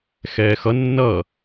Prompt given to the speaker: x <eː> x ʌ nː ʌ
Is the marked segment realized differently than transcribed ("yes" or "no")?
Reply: yes